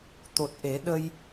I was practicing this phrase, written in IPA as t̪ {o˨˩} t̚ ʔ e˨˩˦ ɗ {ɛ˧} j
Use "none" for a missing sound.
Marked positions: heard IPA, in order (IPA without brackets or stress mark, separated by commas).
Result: o˨˩, ə˧